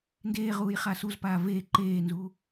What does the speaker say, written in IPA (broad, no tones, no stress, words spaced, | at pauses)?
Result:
ndeːʁuːj χasuzpaː veː ǃeːnzuː